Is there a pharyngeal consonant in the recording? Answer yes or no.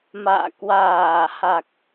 no